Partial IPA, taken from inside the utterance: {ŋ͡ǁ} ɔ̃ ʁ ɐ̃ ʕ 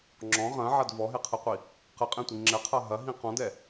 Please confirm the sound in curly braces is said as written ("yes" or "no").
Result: yes